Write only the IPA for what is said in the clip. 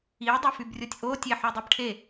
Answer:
i dˤ o f y b rʲ o tʲ ʔ o tʲ e ħ y dˤ e b ʈʰ e

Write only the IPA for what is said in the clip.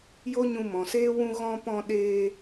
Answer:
j o˦ ɲ ũ˧ m ɔ̃˨ s eː˦ w ũ˧ ɣ ɔ̃˧ p ɔ̃˧ ɗ eː˧

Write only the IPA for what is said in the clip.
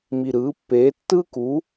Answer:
m i˨˩ ɾ ɯː˩˥ pː eː˩˥ tː ɯː˥ k u˩˥

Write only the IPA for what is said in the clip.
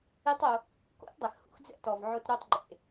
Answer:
i˦ tˤ o˧ | k o̰˦ t dˤ ɛ˨ x h ṵ˧ x d͡z ɛ̰˧ t ɔ˨ v ʕ o˧ t ɾ u˧ tˤ ɡ͡ǃ ḛ˨

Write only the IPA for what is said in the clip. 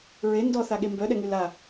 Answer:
ɹ e n d ɔ θ a ɠ e m b œ ɗ ɛ ŋ y l a

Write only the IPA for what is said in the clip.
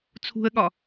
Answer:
t͡sʰ ṳ ə̯ ɠ ɒ

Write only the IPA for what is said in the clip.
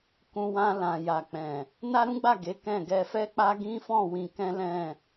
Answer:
k ũ˧ w ã˧ l ã˨ j a˨ k͡p ɛ̃˨ | n a˦ ɾ ũ˦ ɡ͡b a˦˨ ɡ e˨˦ k ɛ̃˦˨ ɡ ɛ˧ f ɛ˦ k͡p a˦ ɡ ĩ˦ f ɔ̃˦˨ w ĩ˧ k ɛ̃˦ l ɛ̃˦˨

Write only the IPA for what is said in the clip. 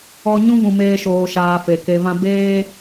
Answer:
ɔ˧ ɲ ũ˦ v ũ˧ m eː˦ ʃ oː˧ ʃ aː˧ f e˨ k e˧ v ã˦ b eː˦

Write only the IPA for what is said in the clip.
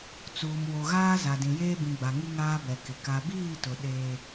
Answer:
t͡s uː˨ m w o˨ ɣ aː˦ z a˨ d ĩ˨ j eː˦ b ĩ˨ ɡ͡b a˨ ŋ i˦ ŋ aː˦ b ɛ˨ k ɪ˨ k a˨ b iː˦˨ t ʊ˨ ɗ eː˦

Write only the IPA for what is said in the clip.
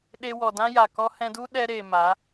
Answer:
ɗ e˧ w ɔ˨ d ã˦ j a˨ k ɔ˧ h ɛ̃˧ d u˦ ɗ ɛ˧ ɾ eː˨ m a˨˦

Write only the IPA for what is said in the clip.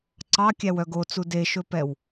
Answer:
ǀ ɑ kʲ æ w œ ɡ o t͡s u d e ʃ ɵ p ɛ w

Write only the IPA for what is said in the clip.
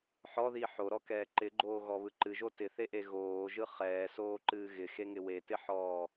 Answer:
ħ ɔ ð i ħ o ɾ ɔ k ɛː ǃ ɪ ɡ͡ǃ oː ɣ ɔ β ɯ ǃ ɨ ʒ o t ɪ θ e ʔ e ɣ oː ʒ ɯ χ ɛː s oː ǃ ɨː ɣ ɪ x e ŋ ɪ w e t ɪ ħ ɔː

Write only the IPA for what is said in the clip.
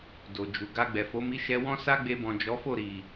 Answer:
d o˨ d͡ʒ u˨ ɡ a˧ ɡ͡b ɛ˨ f o˨˦ m i˦ ʃ ɛ˦ w ɔ̃˦ s a˦ ɡ͡b e˧ b ɔ̃˨ d͡ʒ ɔ˨˦ f o˦˨ ɾ i˨

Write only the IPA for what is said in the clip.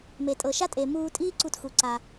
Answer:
m e˩ tʼ ɤ˩ ʃ a˥ tʼ e˩ m uː˧ tʼ iː˥ ǀ u˧ t x u˩ ǀ a˩

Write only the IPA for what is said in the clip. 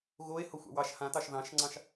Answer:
ɣ o e̯ h o xʷ ɑ̰ w ɑ ʃ h ã t ɑ ʃ ð ɑ̃ ʃ ŋ͡ǀ ɑ̃ ʃ

